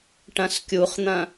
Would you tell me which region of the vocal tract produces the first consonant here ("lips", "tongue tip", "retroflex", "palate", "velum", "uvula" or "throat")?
retroflex